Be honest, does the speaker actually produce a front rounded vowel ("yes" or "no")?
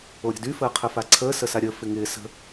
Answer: yes